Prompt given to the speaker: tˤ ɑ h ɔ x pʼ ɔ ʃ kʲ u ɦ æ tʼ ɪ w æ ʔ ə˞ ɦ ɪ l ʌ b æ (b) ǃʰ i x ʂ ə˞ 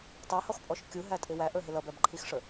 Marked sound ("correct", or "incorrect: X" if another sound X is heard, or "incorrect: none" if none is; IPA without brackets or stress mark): correct